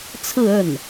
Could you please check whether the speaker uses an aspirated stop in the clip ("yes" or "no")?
yes